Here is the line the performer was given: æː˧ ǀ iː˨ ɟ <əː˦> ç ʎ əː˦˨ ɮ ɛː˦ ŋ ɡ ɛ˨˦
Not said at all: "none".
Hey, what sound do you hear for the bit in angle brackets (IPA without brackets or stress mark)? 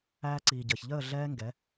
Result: əː˨